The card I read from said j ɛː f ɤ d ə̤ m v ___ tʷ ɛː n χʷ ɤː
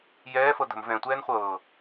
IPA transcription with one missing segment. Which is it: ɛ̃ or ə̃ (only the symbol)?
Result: ɛ̃